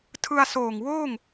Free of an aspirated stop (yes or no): no